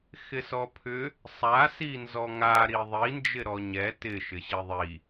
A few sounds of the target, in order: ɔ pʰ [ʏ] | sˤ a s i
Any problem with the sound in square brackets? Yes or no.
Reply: no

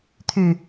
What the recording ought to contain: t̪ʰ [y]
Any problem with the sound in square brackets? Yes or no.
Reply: no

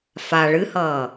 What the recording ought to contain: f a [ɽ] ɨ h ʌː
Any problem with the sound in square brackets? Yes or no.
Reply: yes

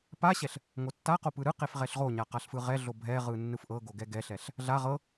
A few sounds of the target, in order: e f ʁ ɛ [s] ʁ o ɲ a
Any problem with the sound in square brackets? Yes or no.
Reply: yes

